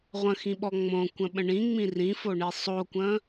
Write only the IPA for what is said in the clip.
ʁʷ ə̃ x ĩ ɓ ɔ ŋ͡m õ kʷ ə̃ ɓ ə̃ ɳ ĩ ŋ͡m ĩ r ĩ f o ɳ i sˤ o kʷ ə̃

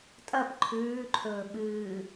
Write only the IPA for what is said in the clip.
tʼ ɐ p ǃʰ ʉː ǃʰ ɵː ɓ ɨː

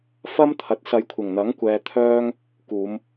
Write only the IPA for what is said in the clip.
f ɐ˥ m t̪ʰ ɐ˨ t̚ s ɐ˨˧ j kʷʰ ɪ˨˩ ŋ n̪ ɐ˨˥ ŋ kʷ ɛː˧ t̪ʰ œː˥ ŋ | k uː˨˧ m

